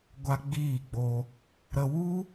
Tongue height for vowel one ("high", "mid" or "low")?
low